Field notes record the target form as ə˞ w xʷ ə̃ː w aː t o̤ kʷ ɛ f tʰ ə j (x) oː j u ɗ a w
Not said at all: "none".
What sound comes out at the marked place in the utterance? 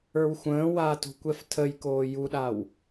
k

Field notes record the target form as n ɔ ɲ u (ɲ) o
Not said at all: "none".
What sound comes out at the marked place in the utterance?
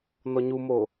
m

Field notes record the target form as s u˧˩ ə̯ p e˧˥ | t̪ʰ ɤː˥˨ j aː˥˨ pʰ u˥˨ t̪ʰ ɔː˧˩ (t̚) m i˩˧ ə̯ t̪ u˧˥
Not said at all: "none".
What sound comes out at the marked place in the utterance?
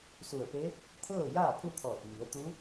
t̚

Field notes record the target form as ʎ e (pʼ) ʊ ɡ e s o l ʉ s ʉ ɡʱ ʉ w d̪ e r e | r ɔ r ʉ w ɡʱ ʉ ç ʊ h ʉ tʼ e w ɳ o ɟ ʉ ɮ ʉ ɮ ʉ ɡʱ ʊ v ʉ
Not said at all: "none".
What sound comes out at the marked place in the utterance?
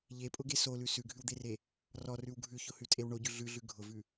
pʼ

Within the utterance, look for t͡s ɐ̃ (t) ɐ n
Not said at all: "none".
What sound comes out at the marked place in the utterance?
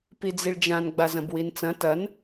t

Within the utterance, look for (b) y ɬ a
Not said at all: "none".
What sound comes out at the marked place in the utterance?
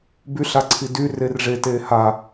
b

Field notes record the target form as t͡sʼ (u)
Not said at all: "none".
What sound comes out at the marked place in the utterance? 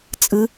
ɯ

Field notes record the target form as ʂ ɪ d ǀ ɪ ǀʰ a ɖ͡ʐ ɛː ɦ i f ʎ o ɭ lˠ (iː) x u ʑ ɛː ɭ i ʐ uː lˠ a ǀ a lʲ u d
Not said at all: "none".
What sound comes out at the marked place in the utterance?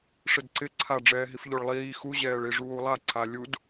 iː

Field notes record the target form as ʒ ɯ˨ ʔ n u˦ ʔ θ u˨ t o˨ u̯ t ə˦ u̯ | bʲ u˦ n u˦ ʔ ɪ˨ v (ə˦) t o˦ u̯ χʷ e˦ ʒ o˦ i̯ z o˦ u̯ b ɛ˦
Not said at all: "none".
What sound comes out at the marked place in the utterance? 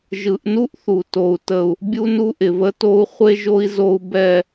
ə˦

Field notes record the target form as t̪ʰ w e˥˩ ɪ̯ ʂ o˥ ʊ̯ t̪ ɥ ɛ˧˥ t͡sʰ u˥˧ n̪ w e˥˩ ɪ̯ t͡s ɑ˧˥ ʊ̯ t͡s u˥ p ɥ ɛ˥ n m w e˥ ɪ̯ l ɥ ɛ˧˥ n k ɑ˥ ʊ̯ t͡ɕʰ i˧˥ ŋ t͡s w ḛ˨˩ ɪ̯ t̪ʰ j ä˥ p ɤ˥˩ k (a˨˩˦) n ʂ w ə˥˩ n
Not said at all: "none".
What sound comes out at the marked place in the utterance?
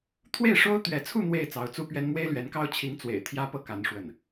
a˧˥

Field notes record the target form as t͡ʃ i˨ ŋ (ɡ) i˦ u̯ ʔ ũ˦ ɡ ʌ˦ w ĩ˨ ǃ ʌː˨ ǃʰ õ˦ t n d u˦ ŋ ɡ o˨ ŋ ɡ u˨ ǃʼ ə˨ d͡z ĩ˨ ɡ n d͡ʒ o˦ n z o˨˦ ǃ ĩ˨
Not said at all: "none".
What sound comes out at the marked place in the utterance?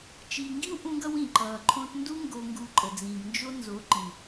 ɡ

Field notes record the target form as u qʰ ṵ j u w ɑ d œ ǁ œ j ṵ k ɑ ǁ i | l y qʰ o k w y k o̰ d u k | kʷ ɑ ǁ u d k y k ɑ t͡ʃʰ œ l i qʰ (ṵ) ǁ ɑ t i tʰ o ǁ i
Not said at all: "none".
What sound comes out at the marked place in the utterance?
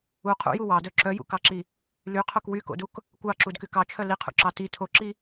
ṵ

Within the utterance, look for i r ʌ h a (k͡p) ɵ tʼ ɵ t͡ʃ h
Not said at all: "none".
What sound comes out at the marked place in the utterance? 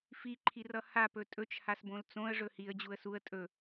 p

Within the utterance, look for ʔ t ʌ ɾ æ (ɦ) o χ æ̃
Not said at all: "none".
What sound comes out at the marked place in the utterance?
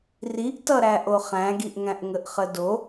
ʔ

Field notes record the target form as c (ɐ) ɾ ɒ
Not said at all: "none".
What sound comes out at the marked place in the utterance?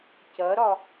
ɐ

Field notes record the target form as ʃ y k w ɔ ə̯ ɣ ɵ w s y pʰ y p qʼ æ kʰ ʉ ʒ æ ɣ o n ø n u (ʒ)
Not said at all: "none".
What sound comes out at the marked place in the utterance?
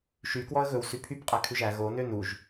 ʒ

